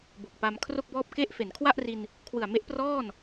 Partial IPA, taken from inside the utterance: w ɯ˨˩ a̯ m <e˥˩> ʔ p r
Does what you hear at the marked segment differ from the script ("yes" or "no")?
yes